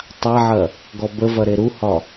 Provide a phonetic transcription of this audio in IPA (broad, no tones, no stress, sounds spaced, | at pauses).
tˤ a ʕ ɐ | ɡ ɔ b ə v ɐ ɾ e ɾ u h ɒ